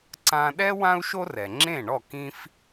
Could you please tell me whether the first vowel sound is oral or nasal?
nasal